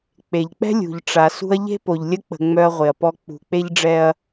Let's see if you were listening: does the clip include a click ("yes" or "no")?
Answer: no